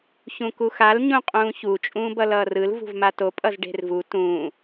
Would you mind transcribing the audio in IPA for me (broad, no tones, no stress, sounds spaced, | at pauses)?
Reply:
ç ũ k u x a l ɲ ũ qʼ ũː ç u t͡ʃʼ ũː b ʌ l ʌː r ɯ l v ṳ v m a t o pʼ ʌ z ɖ e̤ r v u t ũː